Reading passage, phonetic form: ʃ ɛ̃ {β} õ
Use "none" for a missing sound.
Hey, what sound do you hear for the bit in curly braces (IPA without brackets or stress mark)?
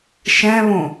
β